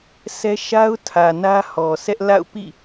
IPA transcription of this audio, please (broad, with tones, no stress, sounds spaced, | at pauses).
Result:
s ɛ˦ ʃ a˦ ʊ̯ tʰ ä˨ n ä˦ h ɔ˨ sʰ ɛ˦ ʔ l a̰˦˨ ʊ̯ p ḭ˦˨